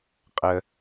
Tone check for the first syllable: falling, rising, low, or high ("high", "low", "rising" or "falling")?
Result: high